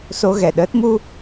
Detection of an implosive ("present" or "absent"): present